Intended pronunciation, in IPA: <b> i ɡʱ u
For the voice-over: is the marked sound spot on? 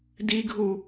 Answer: no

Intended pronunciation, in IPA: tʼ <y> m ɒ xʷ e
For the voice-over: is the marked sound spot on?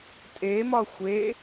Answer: no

